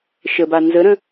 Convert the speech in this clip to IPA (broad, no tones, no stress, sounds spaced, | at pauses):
ʃ ə b a n z ə ɾ ə̃